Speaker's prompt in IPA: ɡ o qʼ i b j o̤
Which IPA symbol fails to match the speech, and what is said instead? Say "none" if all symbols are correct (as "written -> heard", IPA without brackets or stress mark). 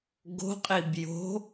o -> o̤